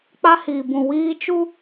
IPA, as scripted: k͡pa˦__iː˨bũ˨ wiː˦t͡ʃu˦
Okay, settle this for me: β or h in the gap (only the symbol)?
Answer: h